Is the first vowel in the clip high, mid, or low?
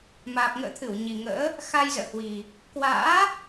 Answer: low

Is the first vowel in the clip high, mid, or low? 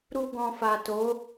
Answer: high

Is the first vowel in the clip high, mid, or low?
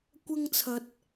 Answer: low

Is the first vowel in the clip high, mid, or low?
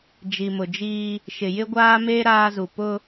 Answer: high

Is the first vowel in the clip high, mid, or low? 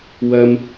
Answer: low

